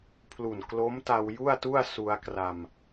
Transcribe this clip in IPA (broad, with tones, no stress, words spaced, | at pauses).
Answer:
pʰlu˨˩nklo˦˥mta˧w ju˥˩a̯tu˥˩a̯ su˧a̯kra˧m